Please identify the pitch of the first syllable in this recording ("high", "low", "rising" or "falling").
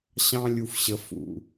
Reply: high